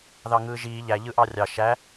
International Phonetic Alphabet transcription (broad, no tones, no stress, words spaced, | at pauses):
ðɑŋɯːʒiː ʎæ ʎɯʔɑrʲɑ ʃæ